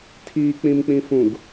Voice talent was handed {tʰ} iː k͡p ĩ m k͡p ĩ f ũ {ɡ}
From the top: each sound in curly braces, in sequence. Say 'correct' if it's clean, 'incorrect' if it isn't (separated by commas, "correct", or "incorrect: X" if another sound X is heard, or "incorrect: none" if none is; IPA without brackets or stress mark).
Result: correct, correct